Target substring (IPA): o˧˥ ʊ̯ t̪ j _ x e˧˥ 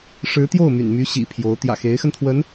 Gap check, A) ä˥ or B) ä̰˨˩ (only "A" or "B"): B